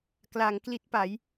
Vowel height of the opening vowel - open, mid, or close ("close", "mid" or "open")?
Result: open